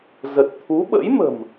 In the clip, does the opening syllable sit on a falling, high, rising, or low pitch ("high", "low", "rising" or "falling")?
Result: low